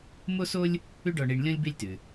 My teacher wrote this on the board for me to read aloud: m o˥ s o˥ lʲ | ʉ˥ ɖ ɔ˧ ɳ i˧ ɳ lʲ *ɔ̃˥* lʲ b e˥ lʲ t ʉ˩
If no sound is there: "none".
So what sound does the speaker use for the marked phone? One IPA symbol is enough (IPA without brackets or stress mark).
ɔ̃˥